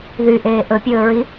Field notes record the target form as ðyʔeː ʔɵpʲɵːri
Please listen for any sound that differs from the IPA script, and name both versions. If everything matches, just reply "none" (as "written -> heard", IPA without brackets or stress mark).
r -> ɹ